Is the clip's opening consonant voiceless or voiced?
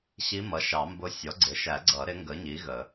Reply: voiceless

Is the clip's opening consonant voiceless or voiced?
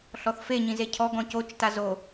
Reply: voiceless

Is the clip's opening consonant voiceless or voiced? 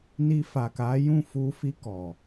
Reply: voiced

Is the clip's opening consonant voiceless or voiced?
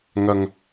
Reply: voiced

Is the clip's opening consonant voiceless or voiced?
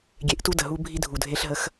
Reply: voiced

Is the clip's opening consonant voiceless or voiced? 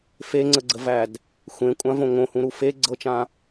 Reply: voiceless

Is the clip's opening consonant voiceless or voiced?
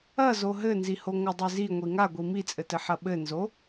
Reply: voiced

